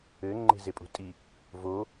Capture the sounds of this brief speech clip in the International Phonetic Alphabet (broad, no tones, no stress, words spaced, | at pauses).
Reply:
ɘ ŋ͡ǃe̤zepʼṳtʼi | vo